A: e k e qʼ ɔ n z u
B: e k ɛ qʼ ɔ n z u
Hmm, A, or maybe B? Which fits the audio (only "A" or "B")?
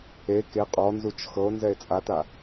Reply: A